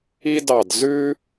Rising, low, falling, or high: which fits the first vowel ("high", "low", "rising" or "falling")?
high